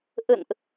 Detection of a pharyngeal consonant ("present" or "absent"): absent